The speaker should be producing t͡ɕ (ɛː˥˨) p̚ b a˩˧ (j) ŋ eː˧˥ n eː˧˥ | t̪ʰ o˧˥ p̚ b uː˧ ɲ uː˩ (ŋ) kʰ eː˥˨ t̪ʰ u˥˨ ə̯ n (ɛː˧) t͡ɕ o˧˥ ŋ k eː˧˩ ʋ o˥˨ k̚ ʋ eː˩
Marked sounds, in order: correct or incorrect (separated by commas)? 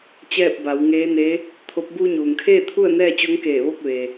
correct, incorrect, correct, incorrect